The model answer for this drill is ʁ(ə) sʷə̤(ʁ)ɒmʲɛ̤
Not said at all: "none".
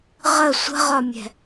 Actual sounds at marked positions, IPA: ə, ʁ

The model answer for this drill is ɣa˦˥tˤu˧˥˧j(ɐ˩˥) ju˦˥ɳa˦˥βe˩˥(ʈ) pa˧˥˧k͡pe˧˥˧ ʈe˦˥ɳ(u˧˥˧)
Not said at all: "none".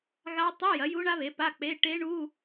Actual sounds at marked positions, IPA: ɐ˩˥, none, u˧˥˧

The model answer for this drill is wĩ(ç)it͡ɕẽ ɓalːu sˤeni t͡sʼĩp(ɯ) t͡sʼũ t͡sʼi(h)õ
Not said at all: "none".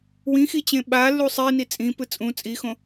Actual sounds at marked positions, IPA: x, ɯ, x

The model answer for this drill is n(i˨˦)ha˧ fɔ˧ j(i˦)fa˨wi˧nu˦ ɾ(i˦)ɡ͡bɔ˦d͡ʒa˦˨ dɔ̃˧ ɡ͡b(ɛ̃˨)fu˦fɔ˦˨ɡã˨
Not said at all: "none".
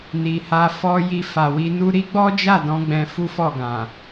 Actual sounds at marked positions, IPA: i˨, i˧, i˦, ɛ̃˧

